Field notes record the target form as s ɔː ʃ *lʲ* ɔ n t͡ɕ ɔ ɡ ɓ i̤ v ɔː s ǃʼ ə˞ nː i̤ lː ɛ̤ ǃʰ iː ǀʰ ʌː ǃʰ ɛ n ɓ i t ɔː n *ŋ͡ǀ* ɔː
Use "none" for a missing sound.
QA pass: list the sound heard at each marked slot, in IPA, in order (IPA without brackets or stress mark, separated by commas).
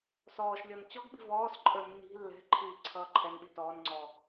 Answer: lʲ, ŋ͡ǀ